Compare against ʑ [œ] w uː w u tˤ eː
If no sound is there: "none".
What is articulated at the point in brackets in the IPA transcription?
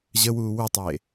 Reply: ə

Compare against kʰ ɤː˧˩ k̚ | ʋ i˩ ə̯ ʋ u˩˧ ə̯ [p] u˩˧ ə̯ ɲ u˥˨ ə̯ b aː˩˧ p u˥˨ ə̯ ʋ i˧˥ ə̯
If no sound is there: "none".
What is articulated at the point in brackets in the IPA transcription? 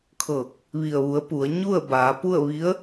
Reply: p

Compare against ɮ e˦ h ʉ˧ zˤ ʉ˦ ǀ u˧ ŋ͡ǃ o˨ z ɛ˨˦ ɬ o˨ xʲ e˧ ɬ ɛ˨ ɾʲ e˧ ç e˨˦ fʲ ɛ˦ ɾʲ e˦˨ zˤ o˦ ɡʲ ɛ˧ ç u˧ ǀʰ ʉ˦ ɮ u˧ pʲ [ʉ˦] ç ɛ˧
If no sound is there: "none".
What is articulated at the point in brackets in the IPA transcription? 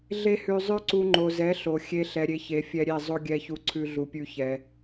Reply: ʉ˦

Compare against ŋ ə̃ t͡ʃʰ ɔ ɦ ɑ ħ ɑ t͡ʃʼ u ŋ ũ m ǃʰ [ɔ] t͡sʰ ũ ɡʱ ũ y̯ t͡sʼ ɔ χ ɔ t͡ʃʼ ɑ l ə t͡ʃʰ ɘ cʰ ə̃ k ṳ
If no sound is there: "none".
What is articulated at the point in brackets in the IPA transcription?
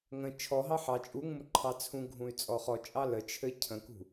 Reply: ɑ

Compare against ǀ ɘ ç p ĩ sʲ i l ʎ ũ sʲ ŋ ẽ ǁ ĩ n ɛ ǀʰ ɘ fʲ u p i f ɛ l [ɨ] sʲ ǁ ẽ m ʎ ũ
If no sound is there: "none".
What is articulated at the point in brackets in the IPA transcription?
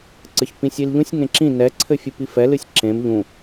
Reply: ɨ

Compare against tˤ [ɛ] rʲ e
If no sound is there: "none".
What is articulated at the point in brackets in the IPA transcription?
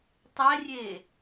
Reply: ɛ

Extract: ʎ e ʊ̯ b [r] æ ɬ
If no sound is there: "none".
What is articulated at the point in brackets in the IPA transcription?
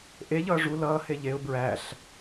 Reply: ɹ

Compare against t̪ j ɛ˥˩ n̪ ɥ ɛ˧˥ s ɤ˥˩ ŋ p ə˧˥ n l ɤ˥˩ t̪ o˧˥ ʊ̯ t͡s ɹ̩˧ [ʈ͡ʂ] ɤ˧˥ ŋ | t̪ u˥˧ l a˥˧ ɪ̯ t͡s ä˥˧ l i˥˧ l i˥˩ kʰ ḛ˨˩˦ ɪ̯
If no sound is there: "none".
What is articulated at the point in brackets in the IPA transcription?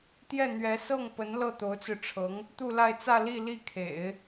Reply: ʈ͡ʂʰ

